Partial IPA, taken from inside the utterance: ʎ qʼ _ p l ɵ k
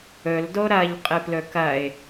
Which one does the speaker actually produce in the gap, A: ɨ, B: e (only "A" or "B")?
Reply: A